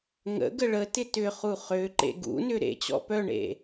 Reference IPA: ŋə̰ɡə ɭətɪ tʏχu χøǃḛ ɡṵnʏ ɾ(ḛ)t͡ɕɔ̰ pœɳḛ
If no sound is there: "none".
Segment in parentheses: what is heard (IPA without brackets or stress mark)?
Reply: ḛ